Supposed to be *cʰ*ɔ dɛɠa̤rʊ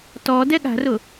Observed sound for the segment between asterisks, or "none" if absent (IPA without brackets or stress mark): t